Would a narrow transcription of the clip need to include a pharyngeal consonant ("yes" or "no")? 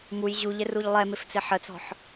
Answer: yes